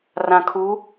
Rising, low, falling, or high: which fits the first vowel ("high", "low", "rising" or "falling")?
low